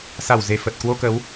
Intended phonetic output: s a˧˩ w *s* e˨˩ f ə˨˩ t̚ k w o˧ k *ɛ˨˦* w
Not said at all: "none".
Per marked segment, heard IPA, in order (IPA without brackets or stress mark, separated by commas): z, ə˨˦